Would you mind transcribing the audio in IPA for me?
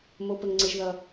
mo˦pə˦ŋŋ͡ǀɪ˦ʒðʌ˦

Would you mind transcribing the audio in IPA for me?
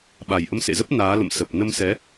ɓa˨˩jʔə˧msḛ˧˨zə˦˥p̚ naː˨˦ lə̰˧˨m sə˨˩p̚nə˧m sɛ˨˦

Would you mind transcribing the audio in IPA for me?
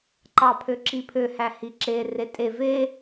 ǃɑpʰøǁipʰø hæhiǁe retʼe ve

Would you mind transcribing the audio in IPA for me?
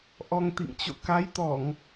ʔɔ˧ŋt̪ḭ˧˨ŋt͡ɕo̰˧˨ ka˨˦jt̪ɔ˧˩˨ŋ

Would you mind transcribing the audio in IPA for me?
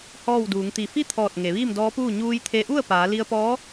hɔː˥˨wduː˩˧ŋt̪i˧˩ fi˥˨t̪ʰɔː˧˩t̚ ŋe˩˧ʋiː˥˨mdɔː˧˥puː˥˨ ɲuː˧jt̪ʰe˧ʔu˥˨ə̯ paː˩˧ li˧ə̯pɔː˧˥

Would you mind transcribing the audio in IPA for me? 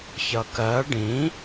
çʌkɜ ɖĩ

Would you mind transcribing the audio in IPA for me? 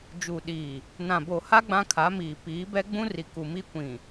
d͡ʒuː˨ɗiː˨ | nã˨bo˨ha˦ ɡ͡bã˦kʰa˨˦miː˨ piː˨˦bɛ˦ɡ͡bũ˦ ri˨ku˨mi˦kʷĩ˨

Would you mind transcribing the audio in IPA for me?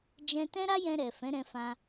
d͡ʒɛ̃˧tɛ̃˦ɾa˦jɛ̃˧ ɾɛ˨ fɛ̃˨˦ɾɛ̃˧fã˧

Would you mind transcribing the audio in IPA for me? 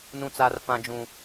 nũ˦t͡sa˦rfã˦d͡ʒũ˦

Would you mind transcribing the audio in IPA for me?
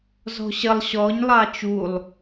zɔ̤ɕəlˠ ɕɔɲ lˠɑt͡ʃulˠ

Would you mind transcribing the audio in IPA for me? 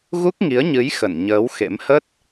ɣu˦˥k̚ŋi˨˦ə̯ɲɨ˨˦j xə˧˩n ɲəː˨˦w xḛ˧˥m hə˦˥t̚

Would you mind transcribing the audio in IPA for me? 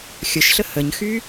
xʲəʃɬə həɲxy

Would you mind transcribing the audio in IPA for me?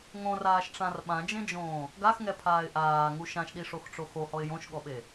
ŋõraːʃʈ͡ʂãr ɓãd͡ʒẽd͡ʒõː | ɡaxŋɛpʰaːɪ̯ ʔaːŋu ʃãʃɗiʂoxʈ͡ʂo xohɔɪ̯ jõʃɠɔɓe

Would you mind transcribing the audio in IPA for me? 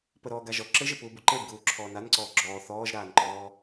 pəɾɔː ɡaʒɔ ǁɘʒɘpuː buǃeb ɡuːǁʰɔːnanǀɔː ɡ͡ǁɔː θɔːʒɾaːnǃɔː

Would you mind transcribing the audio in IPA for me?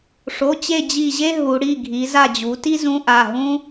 ʂo˩˧˩t͡ɕe˦˨ d͡ʑi˦˨ʑe˥ ɦu˩˧ɽi˩˧˩ɡʱi˩˧ za˦˨d͡ʑu˩˧ti˥zũ˧˥ ʔa˩˧˩ɦũ˥

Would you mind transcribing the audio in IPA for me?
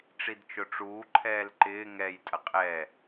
ʈ͡ʂidt͡ʃʊʈ͡ʂuː ǃʰɛːlǃɪː ŋɛj tʼɐqʼɛ

